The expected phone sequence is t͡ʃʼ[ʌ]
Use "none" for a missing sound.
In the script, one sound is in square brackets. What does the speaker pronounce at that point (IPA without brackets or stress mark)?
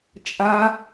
a